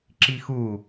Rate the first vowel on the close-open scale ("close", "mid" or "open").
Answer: close